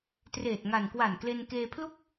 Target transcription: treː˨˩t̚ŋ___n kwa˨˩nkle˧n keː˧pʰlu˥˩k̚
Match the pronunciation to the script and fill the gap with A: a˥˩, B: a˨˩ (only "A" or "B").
B